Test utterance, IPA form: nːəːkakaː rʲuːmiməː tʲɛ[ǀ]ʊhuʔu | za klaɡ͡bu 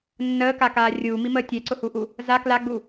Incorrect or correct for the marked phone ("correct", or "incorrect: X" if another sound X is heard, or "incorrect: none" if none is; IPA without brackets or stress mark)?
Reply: correct